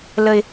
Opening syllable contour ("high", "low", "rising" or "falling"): high